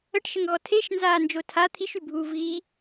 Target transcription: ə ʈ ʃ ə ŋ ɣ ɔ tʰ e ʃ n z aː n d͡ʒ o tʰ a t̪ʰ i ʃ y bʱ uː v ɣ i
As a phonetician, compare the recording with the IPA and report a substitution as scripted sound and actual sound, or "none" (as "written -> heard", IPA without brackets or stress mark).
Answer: none